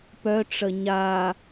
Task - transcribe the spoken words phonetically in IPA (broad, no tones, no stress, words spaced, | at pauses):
pœʈ͡ʂə ɲa